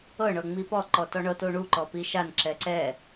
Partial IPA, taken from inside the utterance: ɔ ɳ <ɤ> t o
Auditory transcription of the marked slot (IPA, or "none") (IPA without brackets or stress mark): ɤ